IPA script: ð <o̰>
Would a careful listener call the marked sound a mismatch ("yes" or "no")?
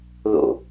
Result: no